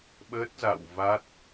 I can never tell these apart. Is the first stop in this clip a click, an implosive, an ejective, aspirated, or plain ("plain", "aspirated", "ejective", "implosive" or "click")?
implosive